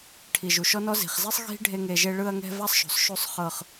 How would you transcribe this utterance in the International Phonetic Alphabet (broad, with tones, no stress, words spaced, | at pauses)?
ʈʰi˨ʒu˨ʃɔ˦nɔ˦ zi̤˨χzi˦sˤ ɣi̤˦ɖʱe˧ ŋe˨ʒe˧ɭɯ˧ɐ̯ŋɛ̤˧ va˦sˤʃo̤˨sˤ ʃu˨sˤχɤ˨χ